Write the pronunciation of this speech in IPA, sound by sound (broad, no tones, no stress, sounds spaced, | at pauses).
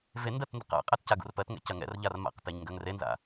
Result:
v e n d ɜ t n d ə̰ q a̰ qʼ ɛ t c a ɡ ṵ r p ɜ t ŋ ɛ̰ c ɜ ŋ ɛ̰ r ʎ a r m a̰ q t e ɲ ŋ ɡ ɜ ŋ r e n z a̰